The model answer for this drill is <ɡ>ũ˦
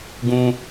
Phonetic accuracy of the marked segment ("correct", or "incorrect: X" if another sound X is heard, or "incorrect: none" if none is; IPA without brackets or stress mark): correct